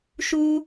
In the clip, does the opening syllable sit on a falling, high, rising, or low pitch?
high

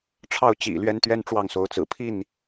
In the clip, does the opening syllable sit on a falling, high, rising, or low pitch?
falling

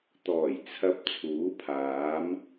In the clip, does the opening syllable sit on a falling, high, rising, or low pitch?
low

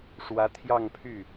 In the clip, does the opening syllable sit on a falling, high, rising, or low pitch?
rising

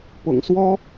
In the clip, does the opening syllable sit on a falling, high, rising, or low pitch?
low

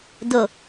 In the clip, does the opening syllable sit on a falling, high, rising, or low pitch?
low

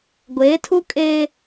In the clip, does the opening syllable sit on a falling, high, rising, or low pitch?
rising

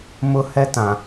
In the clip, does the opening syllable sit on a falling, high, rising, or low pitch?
high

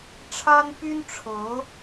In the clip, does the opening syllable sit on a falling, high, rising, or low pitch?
high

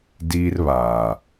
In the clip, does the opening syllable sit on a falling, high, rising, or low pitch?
high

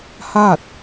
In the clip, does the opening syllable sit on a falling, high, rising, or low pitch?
falling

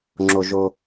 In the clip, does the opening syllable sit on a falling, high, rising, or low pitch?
low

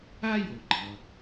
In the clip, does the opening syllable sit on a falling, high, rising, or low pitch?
high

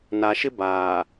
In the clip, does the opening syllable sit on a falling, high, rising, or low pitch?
low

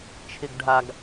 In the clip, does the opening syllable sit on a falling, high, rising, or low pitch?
low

